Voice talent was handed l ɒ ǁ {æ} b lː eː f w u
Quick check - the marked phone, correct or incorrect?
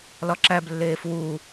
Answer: correct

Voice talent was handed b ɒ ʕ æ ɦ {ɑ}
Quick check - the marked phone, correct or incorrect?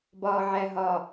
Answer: incorrect: ɒ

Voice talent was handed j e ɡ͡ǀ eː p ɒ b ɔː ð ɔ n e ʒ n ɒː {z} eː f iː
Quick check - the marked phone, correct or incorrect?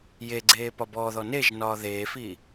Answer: incorrect: ð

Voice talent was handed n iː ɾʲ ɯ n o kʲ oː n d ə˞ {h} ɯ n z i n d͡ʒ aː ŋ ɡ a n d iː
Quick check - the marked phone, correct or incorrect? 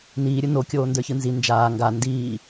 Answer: incorrect: ç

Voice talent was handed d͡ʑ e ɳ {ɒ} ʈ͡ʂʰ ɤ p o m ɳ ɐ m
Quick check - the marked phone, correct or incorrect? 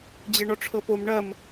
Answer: correct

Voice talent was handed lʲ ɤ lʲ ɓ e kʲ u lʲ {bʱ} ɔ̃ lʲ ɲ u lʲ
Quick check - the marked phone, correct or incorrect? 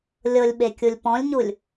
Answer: incorrect: p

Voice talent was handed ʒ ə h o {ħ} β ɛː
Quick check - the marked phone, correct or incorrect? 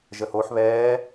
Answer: correct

